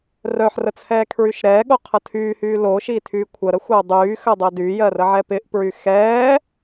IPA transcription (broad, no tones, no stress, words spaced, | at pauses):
rœħrə t͡sʰɛːkʰɹyʃɾɛːɠo qʰətʰyːhyː lo ʃiːtʰyːkʷʰəɾə xʷɪu̯dˤyːxə dˤɜdyjɜ rəʕɛpɪʔpɹy xɛː